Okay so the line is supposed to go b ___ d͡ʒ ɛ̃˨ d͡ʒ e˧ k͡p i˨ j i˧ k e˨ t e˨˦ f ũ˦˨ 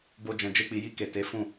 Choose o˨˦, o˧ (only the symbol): o˧